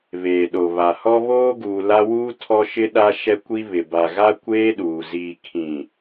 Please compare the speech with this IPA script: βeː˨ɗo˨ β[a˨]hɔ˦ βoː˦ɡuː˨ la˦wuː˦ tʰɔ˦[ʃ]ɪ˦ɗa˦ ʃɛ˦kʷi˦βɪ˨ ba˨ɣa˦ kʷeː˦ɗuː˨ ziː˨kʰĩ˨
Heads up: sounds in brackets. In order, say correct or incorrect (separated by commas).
correct, correct